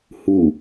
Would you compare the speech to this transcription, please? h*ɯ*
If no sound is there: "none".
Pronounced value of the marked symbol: u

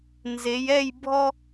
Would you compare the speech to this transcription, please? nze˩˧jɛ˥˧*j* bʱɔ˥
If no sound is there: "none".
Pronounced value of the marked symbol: j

